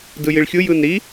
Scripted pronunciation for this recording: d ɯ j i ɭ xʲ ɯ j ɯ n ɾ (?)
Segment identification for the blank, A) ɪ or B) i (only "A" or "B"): B